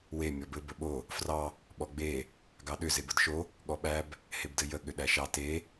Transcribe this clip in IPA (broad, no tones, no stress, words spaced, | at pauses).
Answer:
we mʲɔbɘ bəɓo | frɑ | ɓɔɡ͡be | ɡɑɗʏ zebədʃo | ɠɔɓæb | hebdɘjə ɠʏɗæʃɑ te